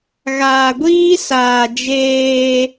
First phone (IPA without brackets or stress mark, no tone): ɣ